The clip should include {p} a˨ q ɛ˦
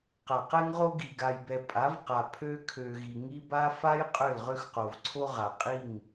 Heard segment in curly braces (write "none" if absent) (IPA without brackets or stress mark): q